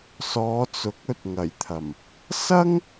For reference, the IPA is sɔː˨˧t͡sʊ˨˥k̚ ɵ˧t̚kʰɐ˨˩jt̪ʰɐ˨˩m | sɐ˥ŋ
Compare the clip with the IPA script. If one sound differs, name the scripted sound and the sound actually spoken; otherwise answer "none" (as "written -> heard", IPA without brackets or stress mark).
kʰ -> ŋ